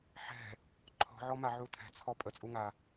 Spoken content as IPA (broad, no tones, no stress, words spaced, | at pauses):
ħɛ̤ | ǃʰɔ̤ʕɔmaʕu tʰɛ̤t͡sʰɔ pʼət͡sʼuŋa